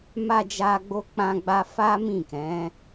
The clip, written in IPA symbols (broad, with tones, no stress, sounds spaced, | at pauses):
m a˧ d͡ʒ a˧ ɡ͡b o˧ k͡p ã˧ ɡ͡b a˧ f a˦ m ĩ˦˨ k ɛ̃˨˦